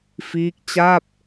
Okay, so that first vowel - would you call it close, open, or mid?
close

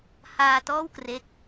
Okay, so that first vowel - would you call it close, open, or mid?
open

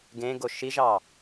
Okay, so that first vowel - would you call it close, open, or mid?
mid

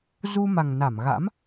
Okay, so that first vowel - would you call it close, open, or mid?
close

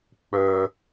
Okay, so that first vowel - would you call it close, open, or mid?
mid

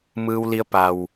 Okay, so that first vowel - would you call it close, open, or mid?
close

